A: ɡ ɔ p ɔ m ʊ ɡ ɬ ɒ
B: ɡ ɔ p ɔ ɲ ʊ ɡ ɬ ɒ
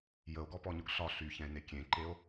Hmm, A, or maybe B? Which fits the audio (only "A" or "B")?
B